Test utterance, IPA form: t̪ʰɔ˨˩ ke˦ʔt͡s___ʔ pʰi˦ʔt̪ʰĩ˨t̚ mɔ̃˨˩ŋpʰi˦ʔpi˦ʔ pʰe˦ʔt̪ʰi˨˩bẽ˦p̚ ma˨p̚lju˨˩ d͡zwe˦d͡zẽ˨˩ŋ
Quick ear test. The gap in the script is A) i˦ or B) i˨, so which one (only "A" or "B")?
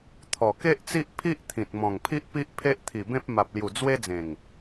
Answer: A